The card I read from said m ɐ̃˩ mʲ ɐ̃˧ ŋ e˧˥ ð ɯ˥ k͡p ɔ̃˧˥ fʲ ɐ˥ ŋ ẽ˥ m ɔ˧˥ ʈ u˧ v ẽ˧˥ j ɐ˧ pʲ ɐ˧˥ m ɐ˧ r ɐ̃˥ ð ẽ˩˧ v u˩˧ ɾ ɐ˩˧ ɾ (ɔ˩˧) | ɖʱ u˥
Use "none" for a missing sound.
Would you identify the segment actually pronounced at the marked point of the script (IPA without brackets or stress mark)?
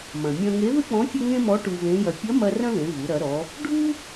ɔ˩˧